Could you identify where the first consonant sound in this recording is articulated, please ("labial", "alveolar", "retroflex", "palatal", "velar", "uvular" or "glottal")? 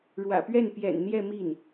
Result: retroflex